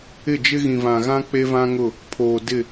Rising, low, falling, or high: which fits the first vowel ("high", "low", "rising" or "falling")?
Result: falling